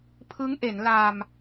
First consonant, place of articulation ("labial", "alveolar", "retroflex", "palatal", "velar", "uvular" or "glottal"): labial